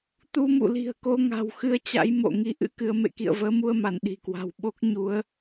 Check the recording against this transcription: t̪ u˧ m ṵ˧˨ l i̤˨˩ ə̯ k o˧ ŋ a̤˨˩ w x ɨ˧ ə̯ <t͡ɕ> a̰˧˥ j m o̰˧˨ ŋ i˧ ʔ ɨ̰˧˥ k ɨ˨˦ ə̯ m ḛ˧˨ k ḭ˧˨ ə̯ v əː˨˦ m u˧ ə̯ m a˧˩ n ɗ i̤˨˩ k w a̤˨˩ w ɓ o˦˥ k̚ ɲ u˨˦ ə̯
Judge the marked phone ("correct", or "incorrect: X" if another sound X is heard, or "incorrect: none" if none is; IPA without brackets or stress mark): correct